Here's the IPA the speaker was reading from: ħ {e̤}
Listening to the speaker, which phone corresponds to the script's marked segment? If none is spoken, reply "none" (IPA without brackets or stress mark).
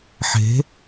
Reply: e̤